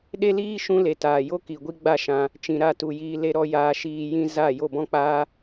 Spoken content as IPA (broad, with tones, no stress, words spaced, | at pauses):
ɗe˦liː˦ ʃũ˦le˨taː˨ jo˦ki˨ ɡʷi˦ɡ͡ba˦˨ʃã˧ | t͡ʃĩ˨ ɾa˦˨tu˨jiː˧ le˧ɾɔ˧ jaː˧ʃiː˧jĩ˦ za˦˨ jo˦˨bɔ̃˦k͡paː˦